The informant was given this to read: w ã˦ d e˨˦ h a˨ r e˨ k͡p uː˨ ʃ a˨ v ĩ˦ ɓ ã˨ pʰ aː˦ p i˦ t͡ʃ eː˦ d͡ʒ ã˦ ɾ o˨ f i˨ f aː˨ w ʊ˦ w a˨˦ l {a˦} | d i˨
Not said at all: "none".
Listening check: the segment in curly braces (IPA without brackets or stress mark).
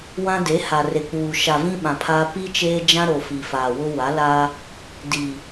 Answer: a˦